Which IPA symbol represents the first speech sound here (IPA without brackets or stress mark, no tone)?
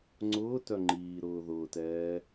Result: ŋ͡ǀ